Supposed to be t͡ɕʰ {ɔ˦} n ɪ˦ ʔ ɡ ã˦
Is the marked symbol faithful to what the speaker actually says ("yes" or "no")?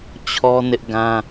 yes